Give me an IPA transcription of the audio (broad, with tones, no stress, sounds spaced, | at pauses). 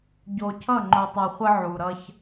ɟ o˨ cʰ ʌ˦˨ ŋ͡ǃ o˨ tˤ o˨ χʷ ə˦ ʕ u˨ ɾ ʌ˦ ç